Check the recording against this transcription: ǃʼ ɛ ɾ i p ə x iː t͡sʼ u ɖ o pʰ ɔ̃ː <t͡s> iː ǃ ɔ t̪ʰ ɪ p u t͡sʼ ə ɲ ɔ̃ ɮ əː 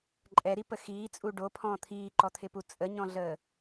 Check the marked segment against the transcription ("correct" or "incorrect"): incorrect